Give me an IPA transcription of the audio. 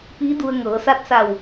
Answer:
p iː˧˥ d u˧ ə̯ ŋ ɤː˩˧ s a˧ t̚ s a˧˩ w

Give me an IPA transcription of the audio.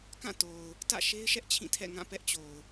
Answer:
k ã˦˨ t o˨ ʊ̯ | t ä̰˦˨ ʃ e˦ ɪ̯ ʃ ɛ˦ ʔ t͡ɕʰ ĩ˦˨ tʰ ɛ̰˦˨ ŋ ã˦˨ p ɛ˦ ʔ t͡ɕ o˨ ʊ̯

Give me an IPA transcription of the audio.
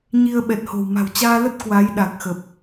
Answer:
ɲ i˧ ə̯ ɓ ɛ˨˩ t̚ h o̤˨˩ w m a̤˨˩ w t͡ɕ aː˧ l ə˦˥ t̚ k w a˨˦ j ɗ a˨˩ k̚ x ə˨˩ p̚

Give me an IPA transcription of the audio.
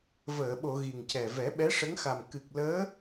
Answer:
v əː˨˩˨ ɓ o˨˩˨ ɣ i˨˩ ŋ c ɛ˨˩ v ɛ˨˩˦ ɓ ɛ˧˥ ʂ ə˧˥ ŋ x a˨˩ m k ɨ˨˩ k̚ l əː˧˥

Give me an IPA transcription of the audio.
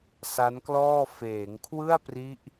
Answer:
s a˦˥ n k l ɔː˥˩ f eː˩˦ ŋ kʰ w ɯ˥˩ a̯ p r i˦˥ ʔ

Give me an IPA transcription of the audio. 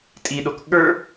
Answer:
tʼ i ɗ o k ɠ ə˞

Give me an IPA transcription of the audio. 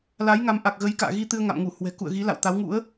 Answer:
l a˨˦ j ŋ a˨˦ m ʔ a˨˩ k̚ ɣ ə˨˦ j k a̰ː˧˨ ɣ i˧ t̪ ɨ˧ ə̯ ŋ a̰˧˨ m ŋ u˧˩ h w ɛ̤˨˩ k ṵ˧˨ ə̯ ɣ i˨˦ l a̰˧˨ w t̪ a˨˦ w ŋ ṵ˧˥ ə̯

